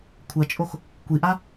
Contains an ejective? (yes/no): yes